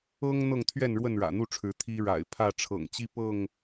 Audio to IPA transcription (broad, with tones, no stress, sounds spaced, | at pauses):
ɤ˦ ŋ n̪ ɤ˥˨ ŋ t̪ʰ ɥ ɛ˥˨ n ɻ w ə˥˨ n ɻ ä̰˨˩ n̪ u˥˨ ʈ͡ʂʰ ɻ̩˨˦ t̪ʰ i˦ ɻ a̰˨˩ ɪ̯ pʰ ä˥˨ ʈ͡ʂʰ ɤ̰˨˩ ŋ t͡ɕ i˦ p ɤ˥˨ ŋ